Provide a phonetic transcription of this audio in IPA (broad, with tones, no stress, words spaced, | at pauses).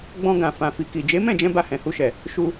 ɡ͡bɔ̃˧ ɡã˨fã˨fi˨ki˨ d͡ʒe˨˦mɛ̃˦˨d͡ʒɛ̃˧ ba˧hɛ̃˨hu˧ʃɛ˨ | ʃu˧